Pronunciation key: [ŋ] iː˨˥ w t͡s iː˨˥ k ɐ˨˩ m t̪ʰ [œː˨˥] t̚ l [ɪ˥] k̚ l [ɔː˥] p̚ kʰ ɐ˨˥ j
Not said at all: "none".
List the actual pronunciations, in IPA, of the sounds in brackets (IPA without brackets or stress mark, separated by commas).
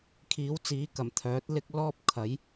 kʰ, œː˨˥, ɪ˥, ɔː˥